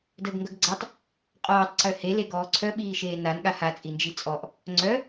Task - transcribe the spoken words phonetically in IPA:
d əː ɡ ŋ ɡ œ ɡ ɡ͡ǀ a tˤ | qʼ ɔː tˤ ǀ œ h e l e ɡ ɔː ǀʰ œ ɓ iː ʃ eː n a n ɠ a h a t͡sʼ i n d͡ʒ i t͡sʼ ɔ ʔ | ŋ͡ǀ œ

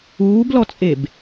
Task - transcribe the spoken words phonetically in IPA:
uː b l ɔ t͡sʼ e b

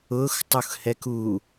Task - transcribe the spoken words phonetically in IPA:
ʊ x tˤ u x h ɛ k u

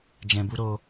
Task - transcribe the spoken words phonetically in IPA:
d͡ʒ ɛ̃˧ b u˦ ɾ o˦

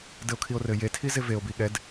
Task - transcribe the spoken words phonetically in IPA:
d ɘ o̯ kʰ i o̯ r ɘ j e tʰ i z e v e o̯ b i ɠ ɛ d

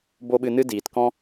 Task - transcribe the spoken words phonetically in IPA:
b o˦ ɓ ɨ˧ n ɨ˦ d iː˨ t k ɔ̃˦

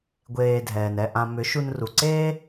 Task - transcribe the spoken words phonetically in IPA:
ɡʷ eː˨ dʱ ɛː˨ n ɛ˧ ʔ ã˧ m ʏ˨˦ ʃ u˧ n r u˨ ǀ eː˦

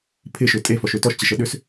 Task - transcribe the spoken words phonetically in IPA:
pʰ ɪ ʃ ʏ tʼ e f ɔ ʃ ø t ɔ ʃ t͡ɕ ɪ ʃ ə ɗ ʏ s

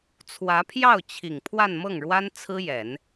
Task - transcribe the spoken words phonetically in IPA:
t͡sʰ w ä˧˥ pʰ j ɑ˥˩ ʊ̯ t͡ɕʰ i˨˩ ŋ pʰ w a˥˧ n m ɤ˥˩ ŋ ɻ w a˥ n t͡sʰ ɹ̩˥ j ɛ˨˩˦ n

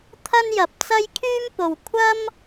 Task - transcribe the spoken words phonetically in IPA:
t̪ʰ ɐ˥ n j ɐ˨ p̚ t͡s ɐ˥ j kʰ yː˥ m p o˨ w kʷʰ ɐ˥ m

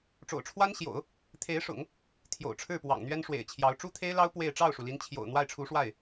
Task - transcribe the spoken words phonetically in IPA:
ʈ͡ʂ o̰˨˩ ʊ̯ ʈ͡ʂʰ w a˥ n ɕ j o̰˨˩˦ ʊ̯ | t̪ʰ e˧˥ ɪ̯ ʂ ʊ̰˨˩˦ ŋ | t̪ʰ j o̰˨˩ ʊ̯ ʈ͡ʂʰ ɻ̩˥˩ p w ɑ̰˨˩ ŋ n̪ ɥ ɛ˥ n ʂ w ḛ˨˩ ɪ̯ t͡ɕʰ j ɑ˧˥ ʊ̯ ʈ͡ʂ u˥ t̪ʰ e˥ ɪ̯ l ɑ˥ ʊ̯ p w e˥˧ ɪ̯ ʈ͡ʂ ɑ˥˩ ʊ̯ ʂ u˩ l i˧˥ n t͡ɕʰ j o̰˨˩ ʊ̯ n̪ w a˥˩ ɪ̯ ʈ͡ʂʰ u˧˥ ʂ w a˥˩ ɪ̯

